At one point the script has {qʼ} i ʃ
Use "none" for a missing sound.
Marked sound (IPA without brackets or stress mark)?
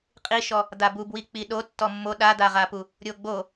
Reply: qʼ